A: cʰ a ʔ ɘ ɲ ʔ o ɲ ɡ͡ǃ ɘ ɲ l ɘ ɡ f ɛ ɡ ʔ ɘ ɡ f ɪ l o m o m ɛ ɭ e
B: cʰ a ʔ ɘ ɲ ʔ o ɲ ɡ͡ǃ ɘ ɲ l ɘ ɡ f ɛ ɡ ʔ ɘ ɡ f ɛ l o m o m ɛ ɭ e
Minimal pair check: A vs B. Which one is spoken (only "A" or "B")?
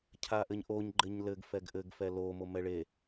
B